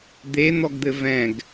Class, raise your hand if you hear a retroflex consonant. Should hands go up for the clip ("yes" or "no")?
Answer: no